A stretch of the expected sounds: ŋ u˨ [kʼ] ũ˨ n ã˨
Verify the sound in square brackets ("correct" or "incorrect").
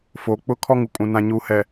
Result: correct